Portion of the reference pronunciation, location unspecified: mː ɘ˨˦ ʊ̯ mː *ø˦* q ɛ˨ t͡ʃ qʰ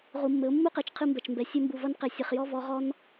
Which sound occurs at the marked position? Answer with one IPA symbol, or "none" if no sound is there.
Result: u˦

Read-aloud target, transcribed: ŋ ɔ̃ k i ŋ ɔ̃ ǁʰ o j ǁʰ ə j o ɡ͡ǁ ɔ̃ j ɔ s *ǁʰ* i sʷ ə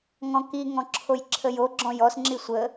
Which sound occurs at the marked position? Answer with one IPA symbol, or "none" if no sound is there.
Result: ŋ͡ǁ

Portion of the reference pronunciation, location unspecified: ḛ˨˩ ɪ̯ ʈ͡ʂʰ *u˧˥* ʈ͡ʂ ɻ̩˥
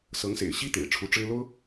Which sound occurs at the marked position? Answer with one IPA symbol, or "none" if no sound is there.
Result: u˧˥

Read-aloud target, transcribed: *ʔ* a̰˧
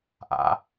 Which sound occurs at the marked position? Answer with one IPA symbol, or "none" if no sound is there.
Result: ʔ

